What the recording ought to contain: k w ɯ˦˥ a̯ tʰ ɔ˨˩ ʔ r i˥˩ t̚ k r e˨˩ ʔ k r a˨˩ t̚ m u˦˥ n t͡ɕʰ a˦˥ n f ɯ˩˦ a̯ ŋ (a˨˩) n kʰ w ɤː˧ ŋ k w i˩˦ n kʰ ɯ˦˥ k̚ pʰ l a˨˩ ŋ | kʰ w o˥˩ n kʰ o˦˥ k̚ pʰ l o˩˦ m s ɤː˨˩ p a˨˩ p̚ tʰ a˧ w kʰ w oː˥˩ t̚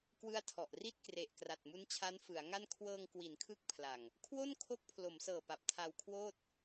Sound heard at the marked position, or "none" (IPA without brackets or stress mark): a˥˩